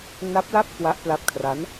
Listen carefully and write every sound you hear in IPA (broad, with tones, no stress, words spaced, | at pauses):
na˦˥p̚la˥˩p̚ kwa˦˥ʔpla˦˥p̚kʰra˦˥n